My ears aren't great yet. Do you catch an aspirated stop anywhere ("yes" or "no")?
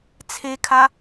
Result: yes